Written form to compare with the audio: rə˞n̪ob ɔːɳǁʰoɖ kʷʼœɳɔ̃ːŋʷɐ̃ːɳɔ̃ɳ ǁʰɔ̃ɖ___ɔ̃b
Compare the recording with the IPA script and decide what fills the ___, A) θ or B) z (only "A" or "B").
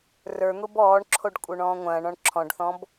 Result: A